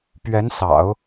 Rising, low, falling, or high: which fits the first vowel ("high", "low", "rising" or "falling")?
rising